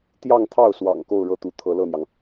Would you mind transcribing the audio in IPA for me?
t̪jɑ˥˧ŋt̪ʰɑ˥˩ʊ̯swɑ̰˨˩ŋ ko˥˧ʊ̯ɻɤ˥˩t̪u˧˥ t̪ʰɤ˧˥lɤ˥˩n̪jɑ˩ŋ

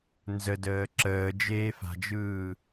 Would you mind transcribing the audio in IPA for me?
nzədəː ǁəːd͡ʒeː fa̤d͡ʒɯː

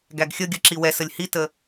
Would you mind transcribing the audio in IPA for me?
ɡæɡxʲəɡʲə ǁiwɛsəlʲ hitə

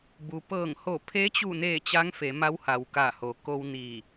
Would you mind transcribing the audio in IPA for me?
bu˩pɤː˧˩ŋho˧˩ pʰe˧˥t͡ɕu˧˩neː˧˩ t͡ɕaː˧˥ŋfe˩˧ma˧˥w ha˩wka˧˩ho˩ ko˧wniː˧˩

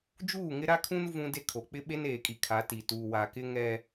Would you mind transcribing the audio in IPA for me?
d͡ʒuː˦˨ŋɪ˦ɾa˦kʰũ˦n vũ˦de˦kʰo˨ k͡pɪ˦ɓe˦neː˨kʼi˨ kʰa˨˦ti˨ tuː˨wa˨kɪ˦ŋɛ˦

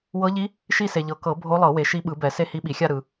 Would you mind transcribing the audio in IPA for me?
wɤ˧˥ʎi˧˥ | ʃi˥˧se˨ʎɤ˨˩˦ kɤ˨˩˦ bʱo˧˥lˠɤ˨˩˦ we˨ ʃi˧˥ɓɯ˨˩˦bɛ˨˩˦ se˥˧hi˧˥ɓi˨˩˦xʲa˥˧ ɾɯ˨

